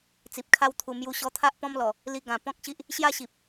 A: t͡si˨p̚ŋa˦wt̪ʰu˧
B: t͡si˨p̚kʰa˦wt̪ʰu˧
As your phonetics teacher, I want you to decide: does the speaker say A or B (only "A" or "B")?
B